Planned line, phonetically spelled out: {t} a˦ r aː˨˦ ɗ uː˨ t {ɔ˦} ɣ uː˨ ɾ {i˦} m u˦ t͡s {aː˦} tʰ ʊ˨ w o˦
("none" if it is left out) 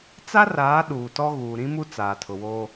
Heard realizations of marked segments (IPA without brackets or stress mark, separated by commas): t͡s, ɔ˦, ĩ˦, aː˨